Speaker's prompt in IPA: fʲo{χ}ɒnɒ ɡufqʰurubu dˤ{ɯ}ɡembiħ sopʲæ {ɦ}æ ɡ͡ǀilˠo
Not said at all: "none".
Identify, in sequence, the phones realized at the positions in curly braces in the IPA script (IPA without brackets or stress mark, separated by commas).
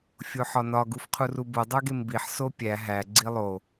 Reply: ħ, u, ɦ